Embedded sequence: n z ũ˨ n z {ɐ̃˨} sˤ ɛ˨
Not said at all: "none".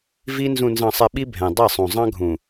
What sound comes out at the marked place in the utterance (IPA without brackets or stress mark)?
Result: ɑ̃˨